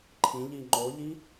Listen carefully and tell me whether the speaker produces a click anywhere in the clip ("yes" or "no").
yes